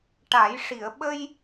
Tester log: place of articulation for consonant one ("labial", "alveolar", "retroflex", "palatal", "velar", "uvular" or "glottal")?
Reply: retroflex